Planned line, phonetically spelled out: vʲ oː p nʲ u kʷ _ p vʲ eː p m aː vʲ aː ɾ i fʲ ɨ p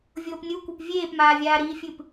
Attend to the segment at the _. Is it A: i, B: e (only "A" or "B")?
B